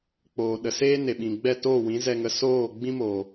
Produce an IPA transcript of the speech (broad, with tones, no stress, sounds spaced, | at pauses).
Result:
k͡p oː˨ ɗ ə˨ s eː˦ n e˨ ɓ ĩ˨ ɡ͡b ɛ˦˨ t oː˦˨ w ĩ˨˦ z ɛ˧ ŋ ə˧ s oː˦˨ ɡ͡b ĩ˦ m oː˨